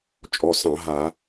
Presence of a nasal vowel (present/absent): present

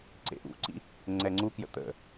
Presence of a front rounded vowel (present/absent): absent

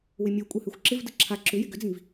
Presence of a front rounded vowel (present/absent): present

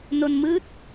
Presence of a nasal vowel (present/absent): absent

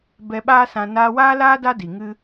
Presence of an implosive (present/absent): present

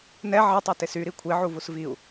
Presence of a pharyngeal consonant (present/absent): present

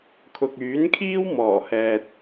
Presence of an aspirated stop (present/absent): present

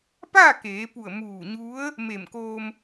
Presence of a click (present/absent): absent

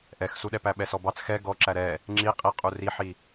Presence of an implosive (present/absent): present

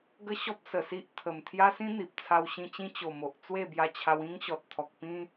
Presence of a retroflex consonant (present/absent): absent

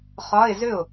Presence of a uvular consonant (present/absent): present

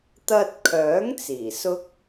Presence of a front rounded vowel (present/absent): present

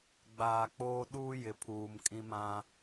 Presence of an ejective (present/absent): present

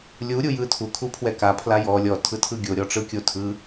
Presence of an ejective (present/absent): absent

